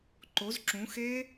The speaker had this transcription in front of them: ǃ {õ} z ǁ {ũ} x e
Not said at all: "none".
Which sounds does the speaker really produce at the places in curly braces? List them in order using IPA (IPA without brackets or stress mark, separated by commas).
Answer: o, ũ